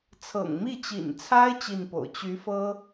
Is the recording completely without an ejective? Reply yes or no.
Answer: yes